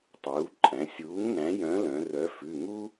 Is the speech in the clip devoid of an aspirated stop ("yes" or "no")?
yes